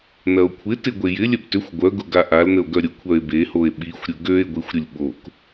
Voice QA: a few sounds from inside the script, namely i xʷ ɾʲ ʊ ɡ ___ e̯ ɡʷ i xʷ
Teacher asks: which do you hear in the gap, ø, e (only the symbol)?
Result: ø